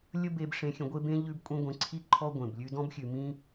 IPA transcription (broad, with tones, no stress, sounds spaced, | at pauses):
lʲ ə˥ b e˧ b ʂ ẽ˧ xʲ ə̃˧ ɡʷ e˥ b ẽ˥ ʎ ʉ˥ b kʷʼ ĩ˥ ɡʷ ẽ˧ ǀʰ i˥ ǃʰ ɔ˥ ɡʷ ẽ˩ b lʲ ʉ˧ d ɔ̃˥ b xʲ ʉ˩ m ĩ˥